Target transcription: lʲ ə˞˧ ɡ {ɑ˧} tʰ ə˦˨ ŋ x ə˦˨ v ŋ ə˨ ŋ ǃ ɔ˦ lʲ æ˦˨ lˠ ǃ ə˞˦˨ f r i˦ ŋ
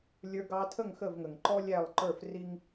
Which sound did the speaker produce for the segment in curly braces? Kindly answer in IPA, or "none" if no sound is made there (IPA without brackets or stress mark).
ɑ˧